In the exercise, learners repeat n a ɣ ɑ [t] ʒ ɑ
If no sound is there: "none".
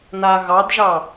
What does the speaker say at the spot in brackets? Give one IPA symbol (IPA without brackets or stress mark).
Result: d